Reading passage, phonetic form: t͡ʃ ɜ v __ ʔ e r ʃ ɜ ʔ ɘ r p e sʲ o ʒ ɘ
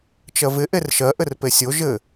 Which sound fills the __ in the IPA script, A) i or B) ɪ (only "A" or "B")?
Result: B